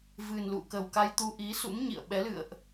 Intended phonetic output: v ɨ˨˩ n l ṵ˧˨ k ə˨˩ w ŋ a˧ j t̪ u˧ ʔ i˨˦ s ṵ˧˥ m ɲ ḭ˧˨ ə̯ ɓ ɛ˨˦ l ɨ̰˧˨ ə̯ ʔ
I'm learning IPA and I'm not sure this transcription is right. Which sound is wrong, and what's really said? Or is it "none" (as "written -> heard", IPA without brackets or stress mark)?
ŋ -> k